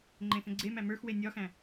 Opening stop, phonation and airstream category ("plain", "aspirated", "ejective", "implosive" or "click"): click